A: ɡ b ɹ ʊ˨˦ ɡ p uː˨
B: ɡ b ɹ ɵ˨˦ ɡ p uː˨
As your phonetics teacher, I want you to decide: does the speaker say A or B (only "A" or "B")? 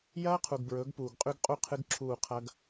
B